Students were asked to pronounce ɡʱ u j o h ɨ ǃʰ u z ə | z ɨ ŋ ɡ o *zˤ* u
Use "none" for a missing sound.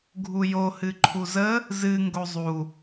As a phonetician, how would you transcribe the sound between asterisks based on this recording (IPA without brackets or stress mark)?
zˤ